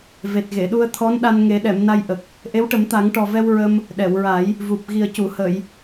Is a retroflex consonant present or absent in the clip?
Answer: present